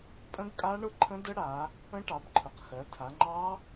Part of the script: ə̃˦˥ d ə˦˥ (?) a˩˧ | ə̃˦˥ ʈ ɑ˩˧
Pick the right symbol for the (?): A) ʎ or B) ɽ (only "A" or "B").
B